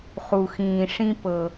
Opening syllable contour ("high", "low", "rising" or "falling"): low